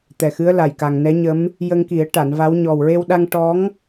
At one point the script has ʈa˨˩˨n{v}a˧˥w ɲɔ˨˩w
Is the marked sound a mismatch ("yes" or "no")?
no